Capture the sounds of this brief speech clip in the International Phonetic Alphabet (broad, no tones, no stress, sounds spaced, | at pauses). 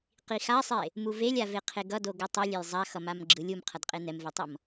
q i x a sˤ e | m u v e lʲ a v e qʰ e ɡ ʌ d o ɡ ɯ tˤ ɯ lʲ e j zˤ a x ʌ m a m ɡ͡ǁ ɯ lʲ u m qʰ ʌ d qʼ e n ɛ m v e tˤ ʌ m